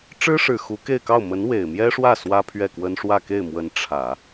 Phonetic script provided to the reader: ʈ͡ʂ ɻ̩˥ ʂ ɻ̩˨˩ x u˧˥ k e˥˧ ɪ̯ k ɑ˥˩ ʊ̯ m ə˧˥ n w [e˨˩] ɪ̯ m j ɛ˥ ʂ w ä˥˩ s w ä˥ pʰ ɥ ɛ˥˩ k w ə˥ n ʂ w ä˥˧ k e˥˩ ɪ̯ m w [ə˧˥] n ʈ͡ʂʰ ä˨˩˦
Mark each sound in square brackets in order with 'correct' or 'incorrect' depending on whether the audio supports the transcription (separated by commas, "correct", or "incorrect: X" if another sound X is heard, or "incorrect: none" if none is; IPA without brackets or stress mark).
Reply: correct, correct